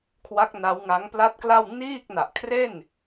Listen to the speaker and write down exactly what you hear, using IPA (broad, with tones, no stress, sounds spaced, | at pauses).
kʰ w a˦˥ k̚ n a˦˥ w ŋ a˦˥ ŋ p l a˥˩ t̚ k l a˥˩ w n iː˥˩ k̚ n a˨˩ ʔ kʰ r e˥˩ n